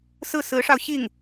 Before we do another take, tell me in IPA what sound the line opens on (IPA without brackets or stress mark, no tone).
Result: s